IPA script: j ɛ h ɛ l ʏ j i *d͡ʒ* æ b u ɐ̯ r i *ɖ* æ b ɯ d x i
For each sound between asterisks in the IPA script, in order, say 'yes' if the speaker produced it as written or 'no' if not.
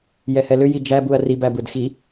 yes, no

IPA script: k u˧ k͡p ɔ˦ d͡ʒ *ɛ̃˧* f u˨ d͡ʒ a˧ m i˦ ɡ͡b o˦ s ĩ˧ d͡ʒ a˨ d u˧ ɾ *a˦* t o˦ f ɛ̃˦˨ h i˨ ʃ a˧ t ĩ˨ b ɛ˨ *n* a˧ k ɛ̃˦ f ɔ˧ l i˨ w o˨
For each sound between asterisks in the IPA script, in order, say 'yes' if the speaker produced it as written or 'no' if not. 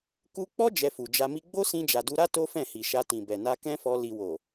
no, yes, yes

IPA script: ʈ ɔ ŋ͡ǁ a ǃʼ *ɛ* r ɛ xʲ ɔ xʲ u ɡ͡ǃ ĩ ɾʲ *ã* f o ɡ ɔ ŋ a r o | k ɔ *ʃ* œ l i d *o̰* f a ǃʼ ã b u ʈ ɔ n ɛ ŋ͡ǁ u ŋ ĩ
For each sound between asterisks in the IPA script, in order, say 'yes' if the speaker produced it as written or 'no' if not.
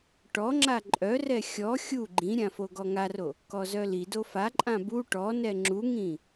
no, yes, no, no

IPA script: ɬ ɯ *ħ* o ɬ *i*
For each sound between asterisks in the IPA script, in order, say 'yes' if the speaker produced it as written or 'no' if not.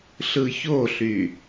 no, no

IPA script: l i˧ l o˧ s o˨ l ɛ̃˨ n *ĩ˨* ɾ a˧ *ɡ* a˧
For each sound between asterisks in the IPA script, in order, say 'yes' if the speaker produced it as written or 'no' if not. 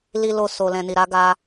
no, yes

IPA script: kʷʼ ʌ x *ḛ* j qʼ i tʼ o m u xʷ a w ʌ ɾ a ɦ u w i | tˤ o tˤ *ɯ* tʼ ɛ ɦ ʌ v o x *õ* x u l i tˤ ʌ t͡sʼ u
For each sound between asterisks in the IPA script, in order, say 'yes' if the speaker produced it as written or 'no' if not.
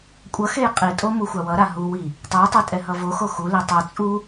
no, yes, no

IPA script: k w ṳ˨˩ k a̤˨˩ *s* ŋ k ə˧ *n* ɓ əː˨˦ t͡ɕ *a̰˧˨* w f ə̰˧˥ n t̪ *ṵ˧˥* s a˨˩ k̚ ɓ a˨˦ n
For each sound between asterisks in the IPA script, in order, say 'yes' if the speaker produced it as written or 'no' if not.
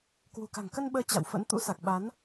no, yes, yes, yes

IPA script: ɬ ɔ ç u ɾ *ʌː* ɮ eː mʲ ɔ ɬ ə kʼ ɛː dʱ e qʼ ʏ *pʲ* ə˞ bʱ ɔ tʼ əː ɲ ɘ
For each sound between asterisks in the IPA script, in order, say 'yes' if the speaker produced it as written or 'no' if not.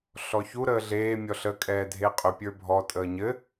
no, yes

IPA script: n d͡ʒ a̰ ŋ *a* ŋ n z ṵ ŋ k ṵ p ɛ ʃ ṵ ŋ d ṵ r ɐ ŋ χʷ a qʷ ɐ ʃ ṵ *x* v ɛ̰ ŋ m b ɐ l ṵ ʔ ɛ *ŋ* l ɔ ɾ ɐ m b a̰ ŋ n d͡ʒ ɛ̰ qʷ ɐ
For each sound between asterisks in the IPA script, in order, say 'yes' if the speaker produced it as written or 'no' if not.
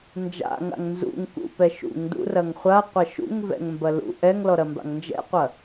no, no, yes

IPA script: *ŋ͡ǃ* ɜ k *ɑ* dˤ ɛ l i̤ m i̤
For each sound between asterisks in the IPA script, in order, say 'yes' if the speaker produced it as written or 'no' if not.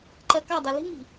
no, yes

